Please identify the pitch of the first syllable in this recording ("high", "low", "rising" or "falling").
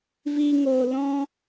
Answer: high